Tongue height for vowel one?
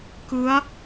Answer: high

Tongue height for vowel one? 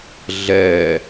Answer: mid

